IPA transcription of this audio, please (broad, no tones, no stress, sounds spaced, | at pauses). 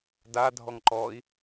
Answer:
d a dʱ ɔ ŋ ǃ ɔ i̯